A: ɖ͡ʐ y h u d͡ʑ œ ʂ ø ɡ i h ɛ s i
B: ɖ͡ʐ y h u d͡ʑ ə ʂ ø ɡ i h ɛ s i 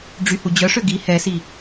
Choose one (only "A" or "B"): A